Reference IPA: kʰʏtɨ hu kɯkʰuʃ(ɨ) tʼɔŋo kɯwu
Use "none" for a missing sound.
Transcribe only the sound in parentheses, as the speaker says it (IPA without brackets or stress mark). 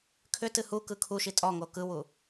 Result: i